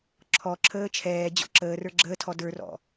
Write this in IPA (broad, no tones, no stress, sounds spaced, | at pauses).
ǁʰ ɔ ǁʰ əː t͡ʃʰ ɛː d͡ʑ ɔ̰ ǁ əː r ə˞ ɡ͡ǁ əː tʰ ɔ d ə˞ r ɔ̰